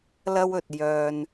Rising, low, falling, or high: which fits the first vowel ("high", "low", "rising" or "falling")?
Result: high